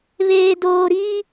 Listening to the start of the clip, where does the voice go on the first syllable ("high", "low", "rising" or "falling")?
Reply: low